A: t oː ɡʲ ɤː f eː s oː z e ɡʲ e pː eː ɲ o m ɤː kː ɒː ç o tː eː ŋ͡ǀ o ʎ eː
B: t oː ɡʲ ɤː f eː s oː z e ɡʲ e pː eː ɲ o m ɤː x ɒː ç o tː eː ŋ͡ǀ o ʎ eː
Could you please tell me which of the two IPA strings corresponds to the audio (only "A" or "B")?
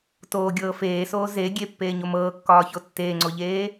A